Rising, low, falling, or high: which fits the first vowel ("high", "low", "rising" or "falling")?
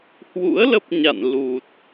rising